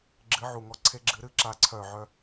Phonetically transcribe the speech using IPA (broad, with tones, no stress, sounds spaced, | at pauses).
ɡ͡ǁ ɨ˨˥ ʕ u˨ ŋ ɔ˦˨ ǀʰ e˦ ɡ͡ǁ ɨ˨˥ ɾ ɨ˦ ǁ a˦˨ ǀʰ œ˦˨ ʕ œ˦